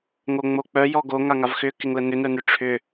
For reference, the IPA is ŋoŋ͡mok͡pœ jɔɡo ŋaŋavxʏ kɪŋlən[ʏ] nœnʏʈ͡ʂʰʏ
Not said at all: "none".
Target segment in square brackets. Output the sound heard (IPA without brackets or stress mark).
ʏ